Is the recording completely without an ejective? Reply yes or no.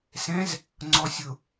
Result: yes